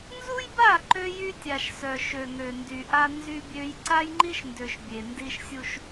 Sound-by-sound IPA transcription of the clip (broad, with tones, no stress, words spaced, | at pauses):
nzu˦jba˦˨ ǃø˦jy˦tʲa˨ʃsœ˨ ʃø˨ŋø˨ndy˨ʔa˦ nzy˦bʲø˦j ǀa˦jŋ͡ǃi˦ʃndø˨ʃ bʲe˨ndi˦ʃsʲu˦ʃ